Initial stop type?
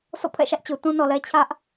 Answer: aspirated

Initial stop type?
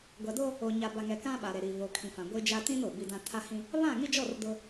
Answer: plain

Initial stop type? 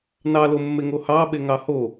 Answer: implosive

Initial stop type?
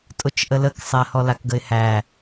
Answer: ejective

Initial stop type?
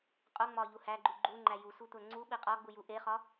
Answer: ejective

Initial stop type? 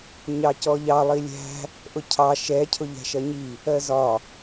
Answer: plain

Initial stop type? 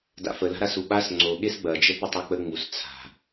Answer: plain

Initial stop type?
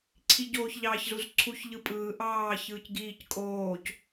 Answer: click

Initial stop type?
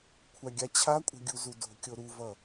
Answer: aspirated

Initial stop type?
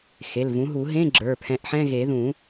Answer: click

